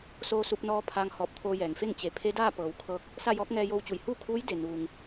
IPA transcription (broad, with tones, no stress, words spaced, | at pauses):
soː˧su˧p̚nɔː˧ pʰaː˧ŋ hɔː˧˩p̚ t̪ʰoː˧jɛː˩ŋfe˥˨ŋ t͡ɕe˩˧ pʰe˧˥daː˥˨pɤː˩w kʰɤː˧k̚ | sa˥˨jɔː˧˥k̚ ŋɛː˧jo˧wt͡ɕu˩˧j huː˥˨kʰuː˧˥j de˩nuː˩ŋ